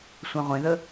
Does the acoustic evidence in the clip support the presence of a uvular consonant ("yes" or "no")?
yes